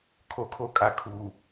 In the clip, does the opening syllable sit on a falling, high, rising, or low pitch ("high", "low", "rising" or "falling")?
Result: low